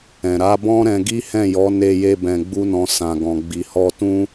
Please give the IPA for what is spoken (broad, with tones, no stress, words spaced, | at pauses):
ɛ̃˨ ɾa˨˦bɔ̃˦ ɾɛ̃˧ɡi˦hɛ̃˦˨jɔ˨˦ ne˧je˧ bɛ̃˧ɡ͡bu˦nɔ̃˧ sã˨ɡɔ̃˨ ɡ͡bi˨hɔ˧ tũ˦